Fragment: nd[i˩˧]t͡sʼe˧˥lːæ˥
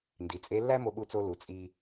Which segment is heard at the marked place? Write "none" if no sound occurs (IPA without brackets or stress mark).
i˩˧